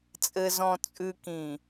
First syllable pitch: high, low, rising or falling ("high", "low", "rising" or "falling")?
low